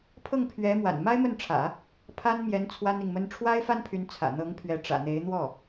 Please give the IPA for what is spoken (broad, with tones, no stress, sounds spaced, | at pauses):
pʰ ɤ˥˩ ŋ pʰ ɥ ɛ˧˥ m w a̰˨˩ n m a˥ ɪ̯ m ə˥˩ n ʈ͡ʂʰ ä̰˨˩˦ | pʰ a˥ n m j ɛ˧˥ n t͡sʰ w a˥ n i˨ ŋ m ə˥ n ʈ͡ʂʰ w a˥ ɪ̯ f a˥ n pʰ y˧˥ n t͡sʰ ä̰˨˩ n̪ ɤ˧˥ ŋ pʰ ɥ ɛ˧˥ ʈ͡ʂ ä̰˨˩ n̪ e˧˥ ɪ̯ n̪ w ɔ˥˩